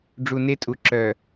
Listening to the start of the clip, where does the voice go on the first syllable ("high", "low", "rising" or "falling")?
low